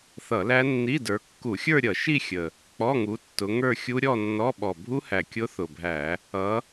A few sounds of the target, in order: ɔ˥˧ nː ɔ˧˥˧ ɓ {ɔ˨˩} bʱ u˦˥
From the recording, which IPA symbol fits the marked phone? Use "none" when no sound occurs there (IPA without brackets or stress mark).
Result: ɔ˨˩